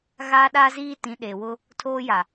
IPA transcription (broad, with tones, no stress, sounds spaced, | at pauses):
ɣ aː˦ ɗ aː˦ z iː˦ t ĩ˨˦ ɗ e˨ w ʊ˦ | tʰ oː˦ j a˨